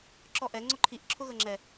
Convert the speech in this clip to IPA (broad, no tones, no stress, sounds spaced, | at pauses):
ǁ ɔ ʔ ɛ ŋ͡ǀ ʊ ǃʰ i ʔ ǁʰ ʊ ɣ ə ŋ͡ǁ ɛ